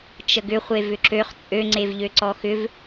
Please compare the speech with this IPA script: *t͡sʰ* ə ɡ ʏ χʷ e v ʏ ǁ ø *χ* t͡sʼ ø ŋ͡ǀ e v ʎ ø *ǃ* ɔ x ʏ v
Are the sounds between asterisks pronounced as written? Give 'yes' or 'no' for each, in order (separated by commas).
no, yes, no